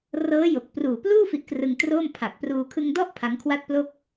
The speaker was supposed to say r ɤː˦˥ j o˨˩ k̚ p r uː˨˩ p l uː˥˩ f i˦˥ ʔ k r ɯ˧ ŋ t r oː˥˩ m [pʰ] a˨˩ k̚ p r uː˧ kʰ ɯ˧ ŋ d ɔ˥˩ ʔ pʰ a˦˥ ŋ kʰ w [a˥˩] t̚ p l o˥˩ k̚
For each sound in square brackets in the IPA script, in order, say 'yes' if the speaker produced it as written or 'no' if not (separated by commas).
yes, yes